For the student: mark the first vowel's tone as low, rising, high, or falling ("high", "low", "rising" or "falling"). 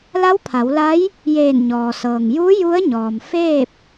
rising